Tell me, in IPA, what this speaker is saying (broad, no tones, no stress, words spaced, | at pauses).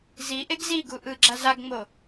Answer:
zi ʔeɡziɡu ʔɯɡ͡ǁa zaɡŋ͡mo